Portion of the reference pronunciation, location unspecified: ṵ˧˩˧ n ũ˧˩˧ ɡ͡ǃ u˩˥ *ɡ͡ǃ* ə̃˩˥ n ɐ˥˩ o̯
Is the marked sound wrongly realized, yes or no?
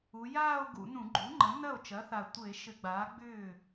yes